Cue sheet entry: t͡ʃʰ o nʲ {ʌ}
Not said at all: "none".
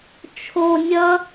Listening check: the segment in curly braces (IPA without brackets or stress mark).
ʌ